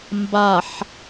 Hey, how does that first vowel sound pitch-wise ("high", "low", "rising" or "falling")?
low